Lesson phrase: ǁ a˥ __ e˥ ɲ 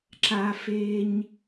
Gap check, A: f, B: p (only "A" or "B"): A